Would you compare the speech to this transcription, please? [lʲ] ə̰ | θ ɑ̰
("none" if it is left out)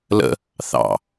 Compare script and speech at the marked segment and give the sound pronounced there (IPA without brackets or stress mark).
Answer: l